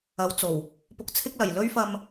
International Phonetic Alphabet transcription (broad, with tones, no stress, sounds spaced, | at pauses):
ɐ˨˥ w t͡s o˨˩ w | p ʊ˧ k̚ t͡sʰ ɪ˥ k̚ l ɐ˨˩ j l ɵ˥ ɥ f ɐ˧ m